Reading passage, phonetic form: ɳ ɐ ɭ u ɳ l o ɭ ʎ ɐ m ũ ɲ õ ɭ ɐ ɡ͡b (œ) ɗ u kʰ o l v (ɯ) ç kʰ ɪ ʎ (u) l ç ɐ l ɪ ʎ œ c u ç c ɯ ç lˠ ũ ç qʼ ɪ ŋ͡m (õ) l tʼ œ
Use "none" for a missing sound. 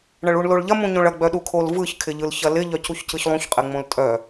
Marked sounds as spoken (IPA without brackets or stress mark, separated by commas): œ, ɯ, ɯ, õ